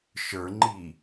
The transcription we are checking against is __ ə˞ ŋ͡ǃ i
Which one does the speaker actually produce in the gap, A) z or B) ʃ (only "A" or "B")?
B